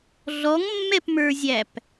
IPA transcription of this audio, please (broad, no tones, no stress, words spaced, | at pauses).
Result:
ɮɔŋmːɛpmə˞zʲæp